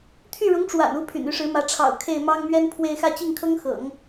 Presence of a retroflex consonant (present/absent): present